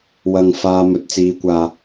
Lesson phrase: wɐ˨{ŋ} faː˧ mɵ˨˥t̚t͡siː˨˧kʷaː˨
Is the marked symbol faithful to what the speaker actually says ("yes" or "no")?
yes